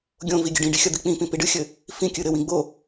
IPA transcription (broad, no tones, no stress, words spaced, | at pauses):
ɡʲõvi ɡʲɘɖĩɖi xʲɐd̪ik͡pĩpĩ piɖɨxʲɘ | fĩ kʲɨɾɘwĩ ɡ͡bo